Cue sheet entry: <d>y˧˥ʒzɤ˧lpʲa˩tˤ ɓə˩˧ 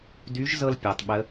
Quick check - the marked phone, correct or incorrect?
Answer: correct